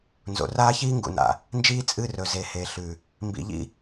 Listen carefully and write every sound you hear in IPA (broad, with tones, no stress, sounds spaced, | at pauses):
n z o̰˨ r aː˦ ç iː˦ ŋ ɡ ṵ˨ n a̰˨ | n d͡ʒ iː˦ t͡sʼ ɨ˦˨ r ɵ˨ z e˨ h e˨ ɬ ʉ˨ | m b ḭ˨ ʎ ḭ˧